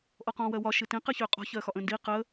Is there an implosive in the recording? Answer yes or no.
no